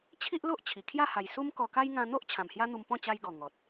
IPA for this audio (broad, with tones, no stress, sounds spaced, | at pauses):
t͡ɕʰ i˦ ʔ l o˦ ʔ t͡ɕʰ i˨˩ kʰ j a˥˧ h a˨˩ j s u˦ m k ɔ˧ k a˦ j ŋ ã˧ n̪ o˦ ʔ t͡ɕʰ ã˨˩ m h j a˦ n̪ u˧ m p ɔ̃˥˧ t͡ɕ a˧ j ɡ ɔ˨˩ ŋ ɔ˨ t̚